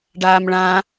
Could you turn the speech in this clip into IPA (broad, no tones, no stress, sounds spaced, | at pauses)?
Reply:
ɖ aː m ɭ ã